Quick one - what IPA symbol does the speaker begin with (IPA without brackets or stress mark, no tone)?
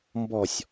m